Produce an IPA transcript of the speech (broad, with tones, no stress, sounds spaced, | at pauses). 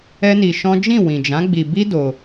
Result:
ɛ˦ n i˧ ʃ ɔ̃˦ d͡ʒ ĩ˦˨ w ĩ˨ d͡ʒ ã˨˦ ɡ͡b i˧ b i˦ d o˧